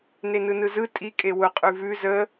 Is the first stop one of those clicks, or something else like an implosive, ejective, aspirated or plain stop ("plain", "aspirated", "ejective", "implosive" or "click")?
ejective